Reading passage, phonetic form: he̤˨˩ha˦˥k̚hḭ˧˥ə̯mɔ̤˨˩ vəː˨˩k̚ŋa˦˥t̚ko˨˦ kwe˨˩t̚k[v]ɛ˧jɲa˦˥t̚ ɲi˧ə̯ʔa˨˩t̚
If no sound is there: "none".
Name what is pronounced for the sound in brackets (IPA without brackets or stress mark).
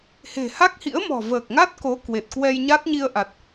w